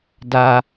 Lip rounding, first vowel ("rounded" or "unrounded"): unrounded